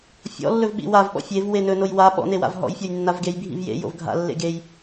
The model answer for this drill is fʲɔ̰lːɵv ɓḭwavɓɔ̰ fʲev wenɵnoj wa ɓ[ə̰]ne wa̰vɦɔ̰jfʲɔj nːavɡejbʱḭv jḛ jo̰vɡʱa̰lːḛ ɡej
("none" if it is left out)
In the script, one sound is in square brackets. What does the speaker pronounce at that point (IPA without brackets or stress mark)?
ɔ̰